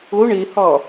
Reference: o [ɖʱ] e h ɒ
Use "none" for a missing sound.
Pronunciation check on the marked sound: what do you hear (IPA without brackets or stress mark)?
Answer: ɳ